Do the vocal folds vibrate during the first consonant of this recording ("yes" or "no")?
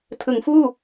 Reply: no